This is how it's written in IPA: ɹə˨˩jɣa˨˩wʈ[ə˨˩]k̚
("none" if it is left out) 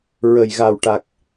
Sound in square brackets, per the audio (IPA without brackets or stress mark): a˨˩